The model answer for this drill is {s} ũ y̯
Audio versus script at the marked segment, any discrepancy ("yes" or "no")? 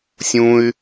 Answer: yes